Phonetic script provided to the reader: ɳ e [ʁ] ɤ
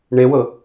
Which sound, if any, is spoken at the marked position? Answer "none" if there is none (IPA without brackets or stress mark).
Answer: w